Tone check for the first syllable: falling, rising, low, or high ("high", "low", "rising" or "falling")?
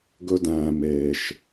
high